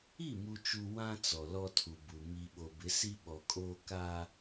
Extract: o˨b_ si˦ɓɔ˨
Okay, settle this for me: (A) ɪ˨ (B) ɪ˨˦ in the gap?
B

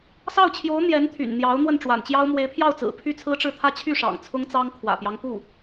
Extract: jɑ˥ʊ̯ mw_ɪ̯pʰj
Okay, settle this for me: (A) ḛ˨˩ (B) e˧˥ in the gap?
B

